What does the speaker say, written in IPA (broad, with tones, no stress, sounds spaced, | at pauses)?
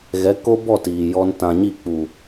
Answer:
ɣ ɛ˨˦ k o˦ b ɔ˦˨ t iː˨ j ɔ˧ n t ã˨ ɲ i˦˨ k͡p u˨